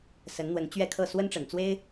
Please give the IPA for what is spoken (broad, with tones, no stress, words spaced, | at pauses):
sə˨˦nn̪wə˨˦n t͡ɕɥɛ˥˨kʰɤ˥˨ swə˦nʈ͡ʂə˨˩nt͡swe˦ɪ̯